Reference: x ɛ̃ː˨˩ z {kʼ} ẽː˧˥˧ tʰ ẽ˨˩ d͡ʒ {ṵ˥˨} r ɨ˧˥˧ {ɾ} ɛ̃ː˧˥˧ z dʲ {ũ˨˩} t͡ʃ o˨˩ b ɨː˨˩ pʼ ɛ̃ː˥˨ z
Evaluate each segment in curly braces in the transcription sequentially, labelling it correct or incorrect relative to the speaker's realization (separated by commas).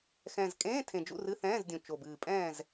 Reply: correct, correct, incorrect, correct